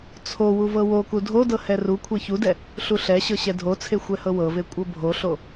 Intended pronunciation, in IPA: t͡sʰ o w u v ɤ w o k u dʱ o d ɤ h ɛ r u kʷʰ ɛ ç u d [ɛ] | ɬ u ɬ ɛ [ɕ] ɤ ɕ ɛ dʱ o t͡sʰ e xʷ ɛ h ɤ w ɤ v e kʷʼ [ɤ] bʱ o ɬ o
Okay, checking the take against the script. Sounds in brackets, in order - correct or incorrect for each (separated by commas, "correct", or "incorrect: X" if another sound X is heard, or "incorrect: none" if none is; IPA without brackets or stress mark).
correct, correct, correct